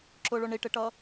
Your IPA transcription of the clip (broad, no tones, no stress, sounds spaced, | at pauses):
ǁ ʊ ɭ ʊ ɳ i ʈ ɪ ʈ ʌ